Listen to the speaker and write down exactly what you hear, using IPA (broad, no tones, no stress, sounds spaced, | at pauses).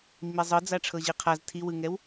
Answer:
mː i zˤ ɯ d͡z a ʈ͡ʂʰ ɤ ʑ i qʰ a z tʰ i w ɯ ŋ ɛ w